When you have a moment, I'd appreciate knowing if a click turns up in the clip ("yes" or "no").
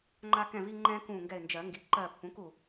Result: yes